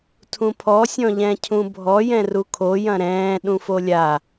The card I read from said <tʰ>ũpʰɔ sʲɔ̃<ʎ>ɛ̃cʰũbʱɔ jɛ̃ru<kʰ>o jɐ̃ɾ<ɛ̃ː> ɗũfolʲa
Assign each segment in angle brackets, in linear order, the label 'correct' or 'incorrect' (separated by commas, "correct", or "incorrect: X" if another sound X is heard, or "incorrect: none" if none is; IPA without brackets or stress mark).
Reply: correct, correct, correct, correct